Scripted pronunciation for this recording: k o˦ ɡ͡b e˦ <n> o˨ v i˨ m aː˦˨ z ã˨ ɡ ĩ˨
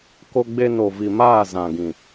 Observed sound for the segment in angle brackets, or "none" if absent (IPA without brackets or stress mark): n